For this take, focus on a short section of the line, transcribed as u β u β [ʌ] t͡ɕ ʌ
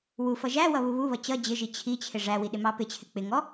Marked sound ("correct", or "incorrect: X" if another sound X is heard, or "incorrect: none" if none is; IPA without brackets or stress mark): correct